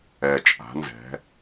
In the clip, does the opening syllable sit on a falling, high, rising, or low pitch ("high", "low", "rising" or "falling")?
low